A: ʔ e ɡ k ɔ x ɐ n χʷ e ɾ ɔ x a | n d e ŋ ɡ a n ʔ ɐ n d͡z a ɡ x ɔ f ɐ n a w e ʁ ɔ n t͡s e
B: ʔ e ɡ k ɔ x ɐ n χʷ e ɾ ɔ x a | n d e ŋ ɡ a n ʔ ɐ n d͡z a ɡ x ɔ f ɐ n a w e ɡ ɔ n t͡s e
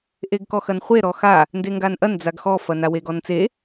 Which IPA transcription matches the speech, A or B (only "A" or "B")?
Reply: B